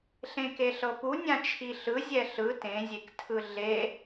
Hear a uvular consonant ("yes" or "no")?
no